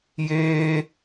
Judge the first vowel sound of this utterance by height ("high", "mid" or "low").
mid